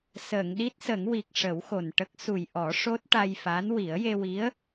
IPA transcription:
səː˨˩˨ŋɗi˦˥t̚sə˨˩˦ŋwi˨˩k̚ ʂə˨˩˦wxo˨˩nʈə˦˥k̚ su˨˩jʔɔ˨˩˦ ʂo˦˥t̚ʈa˧jfa˧˥n wi˨˩˦ə̯je˧wi˧˥ə̯

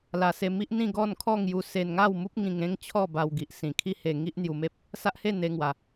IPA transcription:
la˨˩se˧mi˦ʔn̪ĩ˥˧ ɡɔ˥˧nkʰɔ˥˧ŋju˧ se˧nŋa˥˧wmu˦p̚ ŋĩ˧ŋẽ˦ŋ t͡ɕʰɔ˥˧ba˧wɡi˨ʔ sĩ˨˩kʰi˥˧he˧ ŋi˦ʔn̪ju˧me˦p̚ | sa˦ʔhe˥˧ n̪e˧ŋwa˨˩

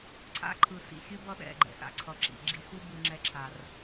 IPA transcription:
ǀʰa̰˦ǃʰɯ˨sḭ˦˨ xʲɯ˦ bʌ˧ ɗɛ̰˦˨ ɡ͡ǃɛ̰˨sa̰˦ǀʰʌ˨ǁḭ˨ ɡ͡ǁi˧ xu˦ bɯ˧ŋ͡ǁɛ˧ǁʰa˨r

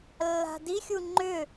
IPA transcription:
lːa̤dixʲu ŋ͡ǃʏ

